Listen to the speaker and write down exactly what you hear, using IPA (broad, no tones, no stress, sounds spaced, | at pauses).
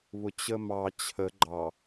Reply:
β ʊ t͡ɕ ə m ɑ t͡ɕʰ ə ɡ͡ǃ ɑ